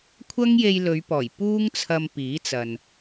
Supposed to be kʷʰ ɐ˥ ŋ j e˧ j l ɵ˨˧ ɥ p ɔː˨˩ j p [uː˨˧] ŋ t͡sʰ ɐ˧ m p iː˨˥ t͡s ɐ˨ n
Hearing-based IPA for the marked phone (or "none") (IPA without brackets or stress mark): uː˥